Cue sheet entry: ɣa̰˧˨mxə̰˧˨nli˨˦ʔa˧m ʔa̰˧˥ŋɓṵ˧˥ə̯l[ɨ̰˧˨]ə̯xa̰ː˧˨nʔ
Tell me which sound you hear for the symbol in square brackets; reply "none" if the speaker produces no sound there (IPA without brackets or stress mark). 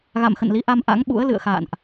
ɨ̰˧˨